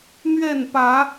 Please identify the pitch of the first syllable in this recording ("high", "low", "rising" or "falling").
falling